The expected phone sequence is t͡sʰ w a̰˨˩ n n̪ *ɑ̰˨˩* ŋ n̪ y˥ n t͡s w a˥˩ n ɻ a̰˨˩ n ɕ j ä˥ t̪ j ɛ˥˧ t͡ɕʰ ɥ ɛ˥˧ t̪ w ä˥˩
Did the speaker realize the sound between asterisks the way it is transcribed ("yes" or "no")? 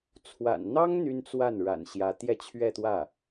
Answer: no